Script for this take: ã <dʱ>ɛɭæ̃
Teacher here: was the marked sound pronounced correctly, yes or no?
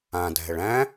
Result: yes